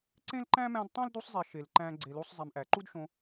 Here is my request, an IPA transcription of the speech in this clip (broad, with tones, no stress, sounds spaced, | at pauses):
ǀ ẽ˥ l ǃ æ̃˥ m æ̃˦ d tˤ æ̃˥ l d u˦ sˤ zˤ i˨ ʃ e˩ l ǃ æ̃˨ ɡ͡ǀ e˨ l u˦ sˤ zˤ i˨ m ʔ æ˩ ǃ u˥ d ʃ õ˦